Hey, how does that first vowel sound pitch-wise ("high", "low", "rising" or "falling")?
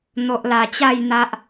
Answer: low